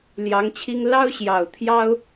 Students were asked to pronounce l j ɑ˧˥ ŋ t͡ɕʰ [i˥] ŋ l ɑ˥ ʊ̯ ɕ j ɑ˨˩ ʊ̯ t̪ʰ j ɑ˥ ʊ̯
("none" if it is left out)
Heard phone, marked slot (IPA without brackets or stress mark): i˥